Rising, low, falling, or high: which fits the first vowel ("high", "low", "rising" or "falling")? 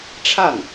falling